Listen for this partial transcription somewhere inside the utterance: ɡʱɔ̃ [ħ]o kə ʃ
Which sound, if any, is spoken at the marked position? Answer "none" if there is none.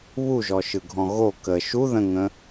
ɣ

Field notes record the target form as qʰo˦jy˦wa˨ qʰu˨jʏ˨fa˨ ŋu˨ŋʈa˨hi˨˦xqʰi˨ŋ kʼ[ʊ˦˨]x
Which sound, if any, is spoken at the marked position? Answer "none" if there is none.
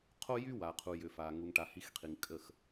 ə˦˨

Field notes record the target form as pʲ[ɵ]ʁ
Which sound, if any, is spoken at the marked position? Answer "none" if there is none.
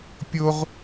o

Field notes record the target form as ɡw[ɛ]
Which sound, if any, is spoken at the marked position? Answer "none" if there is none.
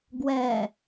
ɛ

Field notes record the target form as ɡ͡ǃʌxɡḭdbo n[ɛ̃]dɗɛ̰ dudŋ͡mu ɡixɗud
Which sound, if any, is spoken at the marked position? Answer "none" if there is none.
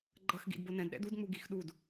ɛ̃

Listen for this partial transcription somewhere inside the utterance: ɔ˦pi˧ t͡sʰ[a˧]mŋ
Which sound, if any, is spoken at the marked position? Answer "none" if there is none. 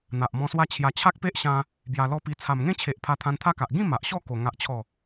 a˨˩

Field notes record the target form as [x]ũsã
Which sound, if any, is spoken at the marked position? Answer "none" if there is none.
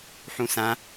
ħ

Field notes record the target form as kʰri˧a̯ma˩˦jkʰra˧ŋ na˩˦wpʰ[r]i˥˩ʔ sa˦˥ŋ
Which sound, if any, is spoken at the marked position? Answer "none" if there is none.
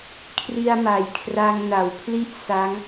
l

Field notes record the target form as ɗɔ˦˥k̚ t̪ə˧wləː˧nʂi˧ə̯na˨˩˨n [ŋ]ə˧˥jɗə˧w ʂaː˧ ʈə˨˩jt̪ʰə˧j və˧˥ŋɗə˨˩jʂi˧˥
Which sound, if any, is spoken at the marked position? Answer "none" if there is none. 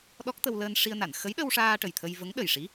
x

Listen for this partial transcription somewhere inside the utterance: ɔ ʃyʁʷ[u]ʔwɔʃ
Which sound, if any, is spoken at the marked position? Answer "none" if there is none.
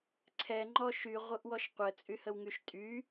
ɯ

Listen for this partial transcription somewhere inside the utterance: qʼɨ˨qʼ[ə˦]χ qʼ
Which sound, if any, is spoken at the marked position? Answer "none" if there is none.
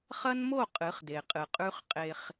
ʉ˦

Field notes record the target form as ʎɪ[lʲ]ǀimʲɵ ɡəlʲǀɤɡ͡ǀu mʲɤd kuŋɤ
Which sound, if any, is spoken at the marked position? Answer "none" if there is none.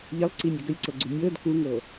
lˠ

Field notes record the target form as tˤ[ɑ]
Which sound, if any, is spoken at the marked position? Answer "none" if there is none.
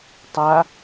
a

